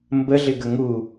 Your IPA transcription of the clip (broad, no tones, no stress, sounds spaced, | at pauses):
m b ə ɮ ɪ ɡ ə ŋ u